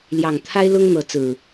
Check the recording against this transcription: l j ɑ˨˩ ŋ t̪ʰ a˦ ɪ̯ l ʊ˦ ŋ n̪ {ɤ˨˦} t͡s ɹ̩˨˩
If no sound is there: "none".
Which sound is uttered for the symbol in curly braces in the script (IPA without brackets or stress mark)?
ɤ˨˦